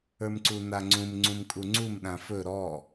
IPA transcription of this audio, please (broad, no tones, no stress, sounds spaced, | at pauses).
ə˞ m ǀ u n a ŋ͡ǀ ũ m ŋ͡ǀ ũ m kʼ u ŋ͡ǀ u m ɗ ã f ɵ ɾ ɔ